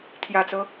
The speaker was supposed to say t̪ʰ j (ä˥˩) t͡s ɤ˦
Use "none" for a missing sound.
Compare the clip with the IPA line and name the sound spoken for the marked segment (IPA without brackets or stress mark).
ä˨˩